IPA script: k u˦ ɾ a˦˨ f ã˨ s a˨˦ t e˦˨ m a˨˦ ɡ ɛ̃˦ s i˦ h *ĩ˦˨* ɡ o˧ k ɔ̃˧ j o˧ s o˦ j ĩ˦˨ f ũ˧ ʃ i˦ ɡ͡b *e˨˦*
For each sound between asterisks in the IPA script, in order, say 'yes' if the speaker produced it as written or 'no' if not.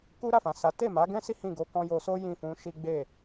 yes, no

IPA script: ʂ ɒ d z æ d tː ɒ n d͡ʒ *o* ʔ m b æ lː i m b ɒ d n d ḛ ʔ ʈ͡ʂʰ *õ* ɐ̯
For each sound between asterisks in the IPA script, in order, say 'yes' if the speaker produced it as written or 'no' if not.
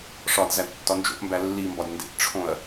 no, yes

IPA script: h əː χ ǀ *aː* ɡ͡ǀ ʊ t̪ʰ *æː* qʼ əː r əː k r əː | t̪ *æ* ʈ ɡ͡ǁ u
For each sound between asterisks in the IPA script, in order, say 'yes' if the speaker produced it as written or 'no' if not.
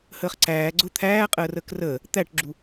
no, yes, yes

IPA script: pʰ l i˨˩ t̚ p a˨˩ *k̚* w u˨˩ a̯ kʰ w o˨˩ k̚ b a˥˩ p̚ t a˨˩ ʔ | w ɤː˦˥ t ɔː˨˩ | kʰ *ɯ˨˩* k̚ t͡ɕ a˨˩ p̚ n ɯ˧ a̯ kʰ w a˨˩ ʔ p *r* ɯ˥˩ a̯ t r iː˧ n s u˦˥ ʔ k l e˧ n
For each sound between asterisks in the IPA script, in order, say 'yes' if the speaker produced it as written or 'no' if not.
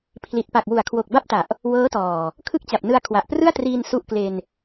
yes, no, yes

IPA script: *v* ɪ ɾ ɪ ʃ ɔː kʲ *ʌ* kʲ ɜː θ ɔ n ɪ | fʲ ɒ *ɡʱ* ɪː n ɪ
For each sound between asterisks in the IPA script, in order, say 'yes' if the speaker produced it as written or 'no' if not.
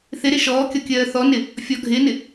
no, no, yes

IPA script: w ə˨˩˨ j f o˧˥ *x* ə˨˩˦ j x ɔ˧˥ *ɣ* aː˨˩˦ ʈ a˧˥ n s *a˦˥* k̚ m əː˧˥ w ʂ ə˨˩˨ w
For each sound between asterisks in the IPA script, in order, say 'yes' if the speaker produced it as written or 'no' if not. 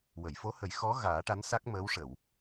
no, yes, yes

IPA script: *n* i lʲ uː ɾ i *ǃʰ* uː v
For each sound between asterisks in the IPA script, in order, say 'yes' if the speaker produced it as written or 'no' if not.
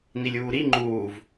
yes, no

